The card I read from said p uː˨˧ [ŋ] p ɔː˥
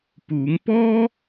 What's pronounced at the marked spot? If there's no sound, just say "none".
ŋ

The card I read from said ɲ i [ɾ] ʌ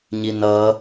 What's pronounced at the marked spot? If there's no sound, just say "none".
n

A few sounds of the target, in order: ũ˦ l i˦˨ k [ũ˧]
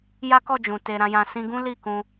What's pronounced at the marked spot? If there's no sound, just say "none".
ũ˧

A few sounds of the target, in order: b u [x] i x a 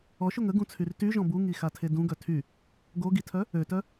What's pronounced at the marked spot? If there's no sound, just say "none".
ŋ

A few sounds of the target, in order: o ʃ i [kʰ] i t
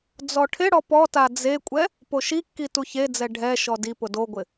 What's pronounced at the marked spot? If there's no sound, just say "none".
kː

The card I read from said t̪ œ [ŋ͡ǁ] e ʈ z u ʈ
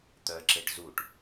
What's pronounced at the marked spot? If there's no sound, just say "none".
ǁ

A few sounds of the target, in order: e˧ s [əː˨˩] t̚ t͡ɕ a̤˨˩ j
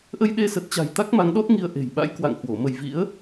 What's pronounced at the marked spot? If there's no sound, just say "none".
ə˨˩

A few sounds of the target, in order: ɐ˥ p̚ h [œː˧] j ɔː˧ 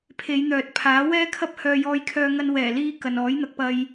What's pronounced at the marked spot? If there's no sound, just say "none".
œː˧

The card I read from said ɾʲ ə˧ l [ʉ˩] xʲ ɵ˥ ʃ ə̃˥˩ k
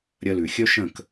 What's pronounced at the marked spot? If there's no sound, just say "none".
ʉ˩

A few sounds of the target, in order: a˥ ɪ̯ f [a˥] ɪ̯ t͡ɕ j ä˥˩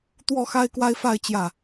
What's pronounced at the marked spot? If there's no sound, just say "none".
a˥˧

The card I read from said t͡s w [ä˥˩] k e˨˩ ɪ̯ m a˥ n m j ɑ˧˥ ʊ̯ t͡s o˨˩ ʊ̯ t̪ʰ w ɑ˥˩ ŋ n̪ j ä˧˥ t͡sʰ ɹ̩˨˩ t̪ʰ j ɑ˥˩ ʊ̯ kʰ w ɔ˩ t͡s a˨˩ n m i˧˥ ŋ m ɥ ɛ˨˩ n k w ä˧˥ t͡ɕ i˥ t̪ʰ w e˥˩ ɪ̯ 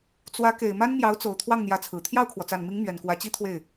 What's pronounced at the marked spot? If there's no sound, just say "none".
ä˧˥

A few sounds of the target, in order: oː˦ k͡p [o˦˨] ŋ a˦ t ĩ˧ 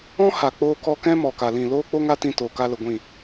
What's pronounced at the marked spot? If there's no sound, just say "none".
o˦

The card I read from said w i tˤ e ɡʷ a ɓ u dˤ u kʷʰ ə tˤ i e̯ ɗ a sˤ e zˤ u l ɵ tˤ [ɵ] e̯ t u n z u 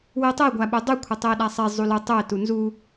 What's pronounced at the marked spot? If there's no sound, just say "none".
ɵ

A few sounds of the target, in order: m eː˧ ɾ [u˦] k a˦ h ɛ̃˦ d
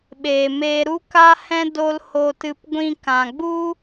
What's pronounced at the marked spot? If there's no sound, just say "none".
u˦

